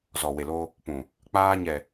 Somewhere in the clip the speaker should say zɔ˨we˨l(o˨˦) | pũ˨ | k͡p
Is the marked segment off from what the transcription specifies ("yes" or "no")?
yes